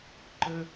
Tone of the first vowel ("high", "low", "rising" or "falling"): high